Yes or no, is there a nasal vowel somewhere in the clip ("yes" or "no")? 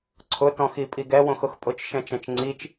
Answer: yes